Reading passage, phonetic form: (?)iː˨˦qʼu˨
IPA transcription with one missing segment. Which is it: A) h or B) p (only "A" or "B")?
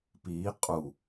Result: B